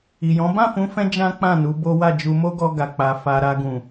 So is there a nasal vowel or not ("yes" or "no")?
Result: yes